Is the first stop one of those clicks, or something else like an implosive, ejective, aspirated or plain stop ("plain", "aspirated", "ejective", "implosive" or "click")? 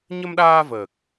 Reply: implosive